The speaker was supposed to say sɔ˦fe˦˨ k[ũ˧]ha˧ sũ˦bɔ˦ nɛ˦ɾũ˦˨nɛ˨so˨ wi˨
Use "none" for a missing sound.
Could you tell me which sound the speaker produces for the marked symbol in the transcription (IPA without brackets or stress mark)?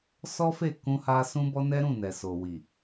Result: ũ˧